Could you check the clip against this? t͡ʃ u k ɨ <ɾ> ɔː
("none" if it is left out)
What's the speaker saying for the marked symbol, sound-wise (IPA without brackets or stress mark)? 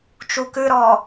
ɾ